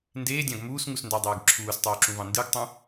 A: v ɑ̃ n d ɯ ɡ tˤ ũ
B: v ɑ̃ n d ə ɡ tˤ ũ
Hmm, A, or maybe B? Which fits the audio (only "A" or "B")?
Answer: A